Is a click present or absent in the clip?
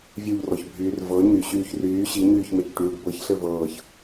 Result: absent